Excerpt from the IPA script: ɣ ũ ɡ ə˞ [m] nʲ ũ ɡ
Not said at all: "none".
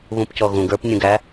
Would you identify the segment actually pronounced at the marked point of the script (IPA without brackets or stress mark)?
p